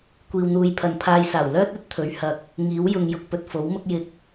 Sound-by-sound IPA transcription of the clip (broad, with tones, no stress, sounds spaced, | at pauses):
kʷ iː˧ w n̪ uː˧ j pʰ ɐ˨ n pʰ aː˧ j s aː˨˩ w l œː˥ t̚ ɵ˨˥ t̚ t̪ʰ ɵ˨˥ ɥ h ɐ˨˥ k̚ | ŋ iː˨˥ w j ʊ˧ ŋ j ʊ˧ k̚ p ɵ˨ t̚ f o˨˥ w m ʊ˥ k̚ j ɪ˧ k̚